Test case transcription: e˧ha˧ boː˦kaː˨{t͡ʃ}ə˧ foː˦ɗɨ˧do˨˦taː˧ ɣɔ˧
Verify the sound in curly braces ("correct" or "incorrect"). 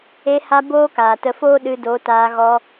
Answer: incorrect